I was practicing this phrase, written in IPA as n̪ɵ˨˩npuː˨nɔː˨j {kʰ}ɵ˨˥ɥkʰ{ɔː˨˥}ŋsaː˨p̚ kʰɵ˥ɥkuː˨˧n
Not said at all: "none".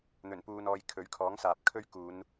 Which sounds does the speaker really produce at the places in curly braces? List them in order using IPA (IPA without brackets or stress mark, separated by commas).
kʰ, ɔː˨˥